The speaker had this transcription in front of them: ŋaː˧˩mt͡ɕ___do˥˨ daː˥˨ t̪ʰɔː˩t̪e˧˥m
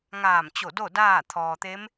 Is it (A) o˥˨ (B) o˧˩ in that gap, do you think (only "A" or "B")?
B